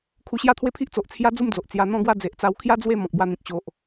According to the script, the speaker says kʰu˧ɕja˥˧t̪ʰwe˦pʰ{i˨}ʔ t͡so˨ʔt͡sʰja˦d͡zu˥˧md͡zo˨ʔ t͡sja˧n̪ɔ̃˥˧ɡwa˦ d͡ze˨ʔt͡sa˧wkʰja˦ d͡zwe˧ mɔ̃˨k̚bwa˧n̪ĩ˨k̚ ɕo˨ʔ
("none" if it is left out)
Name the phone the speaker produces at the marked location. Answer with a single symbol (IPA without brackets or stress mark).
i˦